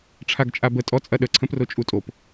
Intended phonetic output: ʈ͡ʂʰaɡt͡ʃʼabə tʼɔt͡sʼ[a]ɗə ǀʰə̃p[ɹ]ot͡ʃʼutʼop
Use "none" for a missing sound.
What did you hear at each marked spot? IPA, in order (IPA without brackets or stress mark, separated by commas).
ɐ, r